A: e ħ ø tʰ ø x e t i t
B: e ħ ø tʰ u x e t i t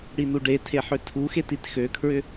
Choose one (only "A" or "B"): B